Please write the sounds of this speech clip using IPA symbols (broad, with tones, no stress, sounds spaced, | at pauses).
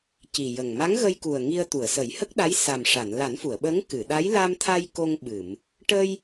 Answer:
c i˨˩ j ə˨˩ ŋ m a˧˥ ŋ ɣ ə˧ j k u˨˩ ə̯ ŋ i˧ ə̯ t̪ u˨˩˨ ə̯ s ə˨˩˦ j h ə˦˥ k̚ ɗ a˧˥ j s a˨˩ m ʂ a˨˩˨ n l a˨˩˦ n f u˨˩˨ ə̯ ɓ ə˧˥ ŋ k ɨ˨˩˨ ɗ a˧˥ j l a˧ m t̪ʰ a˧ j k o˧ ŋ ɓ ɨ˨˩˨ m | ʈ ə˧ j